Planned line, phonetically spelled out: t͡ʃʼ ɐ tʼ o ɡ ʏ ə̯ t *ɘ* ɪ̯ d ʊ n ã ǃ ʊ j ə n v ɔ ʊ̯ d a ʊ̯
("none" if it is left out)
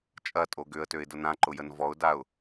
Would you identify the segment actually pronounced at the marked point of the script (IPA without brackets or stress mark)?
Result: ø